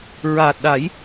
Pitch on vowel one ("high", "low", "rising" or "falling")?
low